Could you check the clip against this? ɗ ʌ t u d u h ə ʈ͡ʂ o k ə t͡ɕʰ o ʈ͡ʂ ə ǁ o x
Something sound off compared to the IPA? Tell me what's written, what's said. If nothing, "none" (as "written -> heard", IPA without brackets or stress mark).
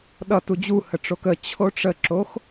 d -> d͡ʑ